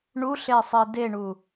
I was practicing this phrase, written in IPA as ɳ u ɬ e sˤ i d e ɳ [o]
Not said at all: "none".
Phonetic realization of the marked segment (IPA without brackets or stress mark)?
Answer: u